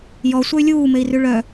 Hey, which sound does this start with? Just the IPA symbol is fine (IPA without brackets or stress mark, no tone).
j